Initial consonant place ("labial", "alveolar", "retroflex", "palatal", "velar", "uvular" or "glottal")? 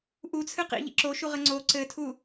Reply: glottal